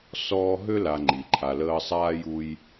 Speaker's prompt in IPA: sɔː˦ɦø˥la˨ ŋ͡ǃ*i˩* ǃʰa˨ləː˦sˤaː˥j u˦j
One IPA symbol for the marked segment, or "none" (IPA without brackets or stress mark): i˩